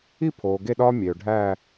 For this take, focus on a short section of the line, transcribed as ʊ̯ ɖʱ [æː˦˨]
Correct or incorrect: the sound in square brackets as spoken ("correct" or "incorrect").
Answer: correct